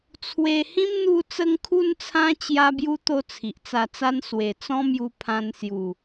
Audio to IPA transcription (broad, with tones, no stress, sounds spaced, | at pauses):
t͡sʰ w e˧ h ĩ˦ m n̪ u˧ t͡s ə˧ ŋ kʰ u˧ n t͡sʰ ã˧ t͡ɕ j a˦ b j u˦ t̪ o˦ t͡sʰ i˨ ʔ t͡s a˧ t͡s a˦ n s w e˨˩ t͡s ɔ̃˦ m j u˧ pʰ ã˧ n s j u˨˩